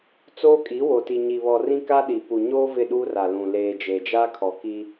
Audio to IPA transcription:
t͡s oː˦ kʼ i˨˦ w o˨ t i˨ ɲ i˨ β ɔ˨ r ĩ˦ k a˦ ɗ i˨ p u˨ ɲ oː˦ v ɪ˦˨ ɗ uː˦ r a˨ l ũ˨ l eː˨ d͡ʒ e˨ d͡ʒ a˦ kʰ ɔ˨ k i˦

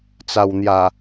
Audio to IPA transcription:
t͡s a˨˩ w n̪ j a˨˩

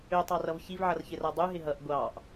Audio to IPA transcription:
ø tˤ ɑ r ʌ v ç i v ʕ ʌ r ç ɪ r a dˤ u ɦ ɪ ɦ ʌ ʔ ɡʷ ɑ ʔ

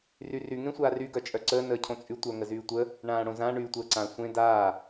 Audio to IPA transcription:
r y r y ŋ ẽ sʷ aː r y ɡ œ t͡ʃʼ œ ǀ əː n əː cʰ õ t͡sʼ y tʷ œ ŋ ə z yː tʷ ə | ɳ ãː ɽ õ z ã ɳ yː tʷ əː ǀ ã sʷ ẽ d aː

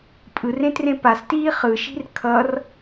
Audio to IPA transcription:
pʼ ɯ r ẽ t r ẽ p a s t iː χ ɯ ʃ i̤ r kʰ ʌ r

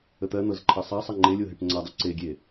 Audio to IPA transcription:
ə t̪ ɜ n̪ ɤ z ǃʰ ɜ sˤ a sˤ ə ŋ͡ǃ e lʲ o ɦ e ʈ ŋ͡ǀ a dˤ ɤ ǀ e ɡʲ e

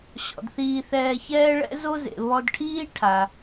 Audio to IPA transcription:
ɕ ɔ̰˩ d θ iː˧ θ ɛː˧ ç ɛː˥ ɭ ɛ̰˥ z o˥ z ḛ˩ β ɔ˧ d ʈʰ iː˥ ʈʰ a˩

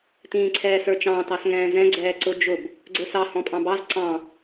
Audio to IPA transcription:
t ĩː ǀʰ ɛː s ə˞ t͡ʃ ɑ̃ː t ɑ s ŋ ɛ̃ː z ɛ̃ ɡ͡ǀ ɛː ǀ ʊ d͡ʒ ʊ b | ɡ͡ǀ ə˞ s ɑ h ɔ̃ pʼ ɑ̃ b ɑ z ǀ ɑ̃

